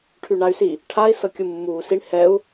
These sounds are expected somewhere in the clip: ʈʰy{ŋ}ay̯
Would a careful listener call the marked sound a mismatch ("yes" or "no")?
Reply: yes